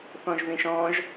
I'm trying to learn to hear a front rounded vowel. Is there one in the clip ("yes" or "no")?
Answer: no